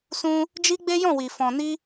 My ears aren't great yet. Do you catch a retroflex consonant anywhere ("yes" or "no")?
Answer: no